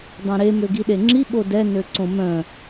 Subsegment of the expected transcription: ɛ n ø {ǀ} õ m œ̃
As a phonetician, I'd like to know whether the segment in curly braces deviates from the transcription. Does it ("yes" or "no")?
no